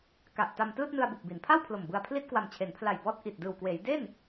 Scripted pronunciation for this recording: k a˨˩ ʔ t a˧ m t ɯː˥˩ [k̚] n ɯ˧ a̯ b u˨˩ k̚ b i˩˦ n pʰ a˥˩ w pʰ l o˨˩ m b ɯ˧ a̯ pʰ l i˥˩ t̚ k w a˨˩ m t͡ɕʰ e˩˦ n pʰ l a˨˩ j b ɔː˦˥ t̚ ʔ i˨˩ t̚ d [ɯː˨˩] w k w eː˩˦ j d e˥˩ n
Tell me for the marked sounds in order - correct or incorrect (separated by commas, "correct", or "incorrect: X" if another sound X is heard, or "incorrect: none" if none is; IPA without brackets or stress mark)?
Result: incorrect: t̚, correct